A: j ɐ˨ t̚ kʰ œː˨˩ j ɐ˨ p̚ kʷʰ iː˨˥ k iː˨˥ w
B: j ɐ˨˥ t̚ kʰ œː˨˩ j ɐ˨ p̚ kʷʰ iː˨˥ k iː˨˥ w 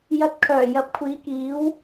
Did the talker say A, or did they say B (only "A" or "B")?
A